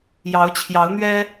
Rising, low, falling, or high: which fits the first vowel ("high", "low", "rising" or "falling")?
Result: rising